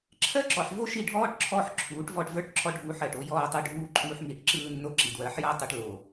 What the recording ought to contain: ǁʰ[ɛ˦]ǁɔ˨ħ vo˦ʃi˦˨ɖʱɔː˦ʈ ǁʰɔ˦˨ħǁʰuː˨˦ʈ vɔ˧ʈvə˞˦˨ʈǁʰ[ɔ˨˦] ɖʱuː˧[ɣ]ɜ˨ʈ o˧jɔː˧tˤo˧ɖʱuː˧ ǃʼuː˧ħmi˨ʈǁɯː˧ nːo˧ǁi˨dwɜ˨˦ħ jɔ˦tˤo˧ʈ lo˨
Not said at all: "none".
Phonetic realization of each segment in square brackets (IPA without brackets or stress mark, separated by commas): ɜ˦, ɔ˧, ħ